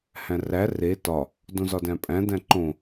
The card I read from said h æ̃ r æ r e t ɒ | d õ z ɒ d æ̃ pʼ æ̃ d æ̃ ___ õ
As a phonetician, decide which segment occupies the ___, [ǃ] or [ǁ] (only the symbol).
ǃ